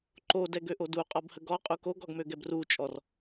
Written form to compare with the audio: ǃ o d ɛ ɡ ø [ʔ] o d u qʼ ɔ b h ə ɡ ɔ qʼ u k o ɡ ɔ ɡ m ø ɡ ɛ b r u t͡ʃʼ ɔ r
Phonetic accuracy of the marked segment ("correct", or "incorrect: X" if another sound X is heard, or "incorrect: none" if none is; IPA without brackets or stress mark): correct